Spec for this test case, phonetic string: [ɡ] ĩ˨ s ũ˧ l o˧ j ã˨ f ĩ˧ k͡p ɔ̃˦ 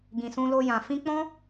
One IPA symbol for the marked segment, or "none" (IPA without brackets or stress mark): ɡ